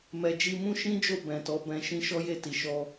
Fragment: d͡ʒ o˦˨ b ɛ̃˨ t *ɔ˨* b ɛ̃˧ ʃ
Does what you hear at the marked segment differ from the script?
yes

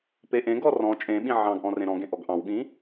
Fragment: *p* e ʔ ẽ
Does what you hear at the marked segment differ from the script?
no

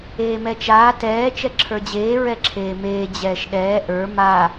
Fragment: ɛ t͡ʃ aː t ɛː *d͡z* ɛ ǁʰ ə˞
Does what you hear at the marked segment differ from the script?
yes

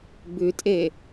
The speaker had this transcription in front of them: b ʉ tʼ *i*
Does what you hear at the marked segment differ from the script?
yes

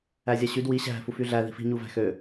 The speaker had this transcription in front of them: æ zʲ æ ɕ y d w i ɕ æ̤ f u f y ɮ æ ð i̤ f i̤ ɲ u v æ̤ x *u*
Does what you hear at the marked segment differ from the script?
yes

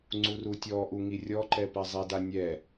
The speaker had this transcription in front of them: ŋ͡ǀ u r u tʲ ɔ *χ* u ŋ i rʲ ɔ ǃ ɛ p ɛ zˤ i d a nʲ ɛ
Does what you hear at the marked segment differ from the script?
yes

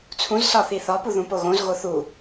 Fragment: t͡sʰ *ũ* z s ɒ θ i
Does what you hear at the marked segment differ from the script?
no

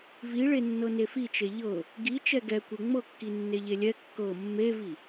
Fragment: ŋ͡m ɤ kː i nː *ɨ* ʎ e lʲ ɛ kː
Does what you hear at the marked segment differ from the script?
yes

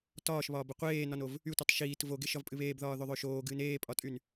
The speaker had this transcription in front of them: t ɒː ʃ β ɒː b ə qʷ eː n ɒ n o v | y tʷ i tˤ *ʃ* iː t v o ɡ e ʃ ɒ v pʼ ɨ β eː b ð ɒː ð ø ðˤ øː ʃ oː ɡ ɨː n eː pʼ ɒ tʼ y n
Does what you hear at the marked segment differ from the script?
no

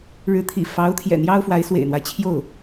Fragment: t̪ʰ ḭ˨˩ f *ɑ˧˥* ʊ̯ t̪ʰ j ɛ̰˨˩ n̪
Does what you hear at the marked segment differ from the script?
no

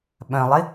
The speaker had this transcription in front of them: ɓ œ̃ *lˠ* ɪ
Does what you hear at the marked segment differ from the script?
no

